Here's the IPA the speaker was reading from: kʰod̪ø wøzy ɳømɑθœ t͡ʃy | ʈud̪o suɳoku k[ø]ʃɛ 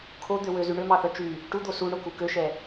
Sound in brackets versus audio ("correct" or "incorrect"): correct